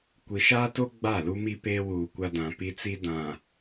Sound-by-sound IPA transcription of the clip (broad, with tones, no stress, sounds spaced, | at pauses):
kʷ i˨ ʃ aː˦ t o˦ ɡ͡b a˦˨ l u˦ m i˦ p eː˦ w uː˨ kʷ a˦ d ã˨˦ p i˦ t͡s i˦ d ã˨